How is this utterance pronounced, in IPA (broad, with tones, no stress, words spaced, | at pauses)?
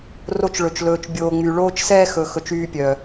ro˧t͡ʃɭɵ˨t͡ʃlɵː˨t͡ʃ bʲoː˨ŋ͡my˨ɭoː˦t͡ʃsɛː˦ xɵ˨ xɵ˧t͡ʃyː˦pʲœ˨